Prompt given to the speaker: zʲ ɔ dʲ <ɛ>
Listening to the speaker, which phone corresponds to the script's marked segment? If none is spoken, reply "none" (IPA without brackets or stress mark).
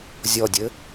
ɘ